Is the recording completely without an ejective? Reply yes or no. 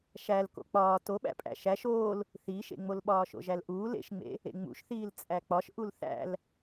no